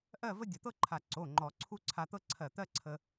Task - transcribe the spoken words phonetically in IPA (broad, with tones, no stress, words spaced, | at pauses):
ʔɜ˥˧və˥ dʲə˧˩t̪ɤ˥ǃʰa˧˩ ǀo˩˧˩ŋ͡ǃɔ˨˩˦ ǀʰu˥˧ǀʰa˧t̪ɤ˥ ǀʰɜ˧˩t̪ɜ˥ǀʰə˧